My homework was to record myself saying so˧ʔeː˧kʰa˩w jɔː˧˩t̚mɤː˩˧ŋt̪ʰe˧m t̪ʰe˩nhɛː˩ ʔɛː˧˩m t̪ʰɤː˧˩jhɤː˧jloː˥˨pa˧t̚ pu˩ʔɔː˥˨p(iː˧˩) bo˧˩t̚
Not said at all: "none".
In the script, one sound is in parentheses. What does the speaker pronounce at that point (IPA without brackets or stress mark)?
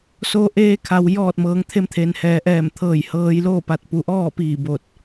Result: iː˧˩